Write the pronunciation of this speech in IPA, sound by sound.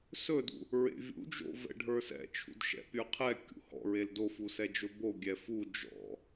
s ɵ d ṵ | ɹ ḛ vʲ ṵ d͡ʒ o̰ v ɛ̰ ɖʱ ə˞ s ɛ̰ t͡ʃʰ ṵ d ʃ ɛ̰ pʲ ə˞ qʰ ɛ kʲ ṵ h ɔ̰ ɹ e l d o f u s ɛ d͡ʒ ɵ b o ɡʲ ɛ f u d͡ʒ ɔ̰

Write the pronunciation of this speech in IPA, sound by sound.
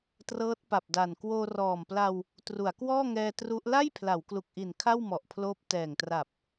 t r ɤː˦˥ t̚ p a˨˩ p̚ d a˨˩ n k w oː˧ r ɔː˨˩ m p l a˧ w | t r u˩˦ a̯ k w ɔː˥˩ ŋ ɛː˧ t r u˦˥ ʔ l a˥˩ j pʰ l a˩˦ w k l u˨˩ k̚ ʔ i˨˩ n kʰ a˥˩ w m ɔ˨˩ ʔ pʰ l oː˦˥ p̚ t ɛː˨˩ ŋ t r a˨˩ p̚

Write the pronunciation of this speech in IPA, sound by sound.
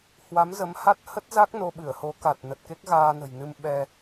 h w a˨˦ m z ə˨˦ m h a˦˥ t̚ h ə˦˥ t̚ z a˦˥ k̚ n o˧ ɓ ɨ˧˩ ə̯ h o˨˦ k a˨˩ t̚ n ə˨˩ t̚ k e˦˥ k̚ ɣ aː˧ n ə̤˨˩ j n ɨ˧ m ɓ ɛ˧

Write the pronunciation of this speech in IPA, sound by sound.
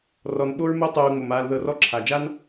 r ɔ˨ n ɓ o˥ ɹ m ɯ˦ tˤ uː˨ ŋ͡m o˩ m aː˨ l ð ɤ˨ r ɔ˦ ǁʰ a˩ d͡ʒ a˥ n

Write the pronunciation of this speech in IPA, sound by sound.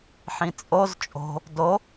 ħ ĩ t͡sʼ o z t͡ʃʼ o̤ | d o

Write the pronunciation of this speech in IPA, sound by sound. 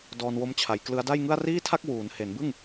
d ɔː˧ n w o˦˥ m t͡ɕʰ a˩˦ j k l ɯ˦˥ a̯ d a˥˩ j ŋ ɯ˥˩ a̯ r iː˥˩ tʰ a˥˩ k̚ w uː˩˦ n h e˩˦ n b ɯ˥˩ ŋ

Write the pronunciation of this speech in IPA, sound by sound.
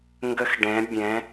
ŋ ɡ ə˧ x ɖ ɛ̃˩˧ bʲ ɛ̃˩˧

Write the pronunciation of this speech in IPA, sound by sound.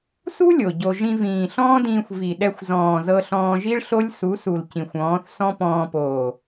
s u˦ lʲ o˨ ɟ o˧ ʒ ĩ˧ v ĩː˨ ɬ ɔ̃ː˦ d ĩː˧ xʷ v i˨ ɗ ɛ˧ xʷ z ɔ̃ː˨ z ɤ˧ ɬ ɔ̃ː˧ ʒ i˦ ɭ ɬ o˦ lʲ s u˨˦ s u˨ l c ĩ˨ xʷ ɔ̃ː˨˦ θ s ɔ̃˦ p ɔ̃ː˧ p oː˨

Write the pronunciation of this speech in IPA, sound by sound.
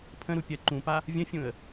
pʰ ə̃ ɾ u pʲ ɜ ǃ ũ p a | vʲ ə̃ fʲ ũ ə̯

